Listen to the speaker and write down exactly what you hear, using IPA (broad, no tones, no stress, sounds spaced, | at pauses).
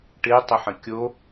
ʈ ɪ tˤ ɪ ħ ə̃ kʲ o